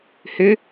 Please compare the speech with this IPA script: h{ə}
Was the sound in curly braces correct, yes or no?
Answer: no